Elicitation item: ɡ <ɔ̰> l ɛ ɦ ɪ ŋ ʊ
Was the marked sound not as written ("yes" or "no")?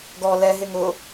yes